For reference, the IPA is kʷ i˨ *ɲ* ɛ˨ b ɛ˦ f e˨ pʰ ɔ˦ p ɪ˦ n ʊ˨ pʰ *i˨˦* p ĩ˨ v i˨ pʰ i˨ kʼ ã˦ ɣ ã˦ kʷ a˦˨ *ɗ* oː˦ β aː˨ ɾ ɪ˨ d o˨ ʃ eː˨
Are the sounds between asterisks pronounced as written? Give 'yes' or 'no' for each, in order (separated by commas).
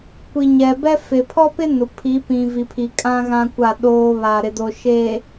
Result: yes, yes, yes